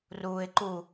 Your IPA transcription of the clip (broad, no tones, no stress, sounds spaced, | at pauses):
r uː ɪ̯ ǃ u